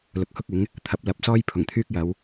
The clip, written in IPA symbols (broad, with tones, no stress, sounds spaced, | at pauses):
l ʊ˨ k̚ h ʊ˥ k̚ ɪ˨˥ ŋ | t̪ʰ ɐ˨˥ p̚ l ɐ˨˥ p̚ s ɔː˥ j pʰ ʊ˨˩ ŋ t̪ʰ yː˥ k̚ j ɐ˨˧ w